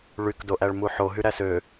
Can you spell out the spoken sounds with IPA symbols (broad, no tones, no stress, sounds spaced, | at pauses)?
ɭ y k d o ʔ æ ɭ m u ħ o ɦ y ɾ æ s ø